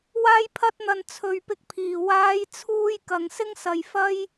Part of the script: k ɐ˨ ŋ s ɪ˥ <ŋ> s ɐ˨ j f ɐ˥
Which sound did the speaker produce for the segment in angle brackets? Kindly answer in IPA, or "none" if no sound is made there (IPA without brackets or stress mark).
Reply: ŋ